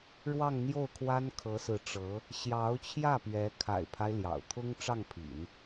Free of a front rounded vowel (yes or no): yes